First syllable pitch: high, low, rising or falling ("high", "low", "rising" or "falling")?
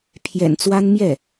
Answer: low